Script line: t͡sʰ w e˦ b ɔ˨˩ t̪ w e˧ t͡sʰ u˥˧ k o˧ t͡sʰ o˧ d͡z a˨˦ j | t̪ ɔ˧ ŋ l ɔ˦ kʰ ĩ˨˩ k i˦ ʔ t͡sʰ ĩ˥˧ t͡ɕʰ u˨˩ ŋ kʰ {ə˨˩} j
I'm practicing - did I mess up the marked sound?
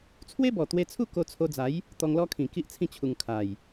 yes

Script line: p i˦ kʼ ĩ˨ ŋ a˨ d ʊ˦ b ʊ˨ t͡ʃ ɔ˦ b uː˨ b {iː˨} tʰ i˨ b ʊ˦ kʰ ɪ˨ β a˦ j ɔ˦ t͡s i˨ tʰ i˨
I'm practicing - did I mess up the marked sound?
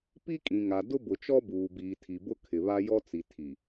no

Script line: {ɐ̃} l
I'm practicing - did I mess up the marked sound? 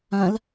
no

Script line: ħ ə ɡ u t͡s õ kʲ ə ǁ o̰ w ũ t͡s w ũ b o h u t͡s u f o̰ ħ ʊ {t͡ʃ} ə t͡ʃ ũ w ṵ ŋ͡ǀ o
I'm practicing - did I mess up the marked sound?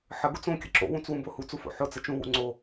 yes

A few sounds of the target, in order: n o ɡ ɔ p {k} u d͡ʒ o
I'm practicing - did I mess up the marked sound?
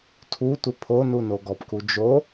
no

